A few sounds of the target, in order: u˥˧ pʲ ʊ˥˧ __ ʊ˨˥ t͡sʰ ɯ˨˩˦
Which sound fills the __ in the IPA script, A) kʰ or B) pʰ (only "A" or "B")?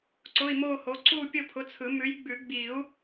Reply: B